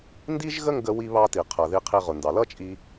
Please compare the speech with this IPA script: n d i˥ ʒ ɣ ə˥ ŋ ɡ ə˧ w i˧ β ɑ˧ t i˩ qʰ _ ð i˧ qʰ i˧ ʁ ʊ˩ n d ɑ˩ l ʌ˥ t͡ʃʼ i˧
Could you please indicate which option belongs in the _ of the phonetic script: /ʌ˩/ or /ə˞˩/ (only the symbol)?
ʌ˩